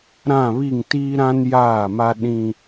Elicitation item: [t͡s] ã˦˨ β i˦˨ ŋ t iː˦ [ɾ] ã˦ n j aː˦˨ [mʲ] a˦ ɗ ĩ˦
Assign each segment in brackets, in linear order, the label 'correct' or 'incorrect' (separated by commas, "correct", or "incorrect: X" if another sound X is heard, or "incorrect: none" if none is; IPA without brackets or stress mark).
incorrect: ɾ, correct, incorrect: m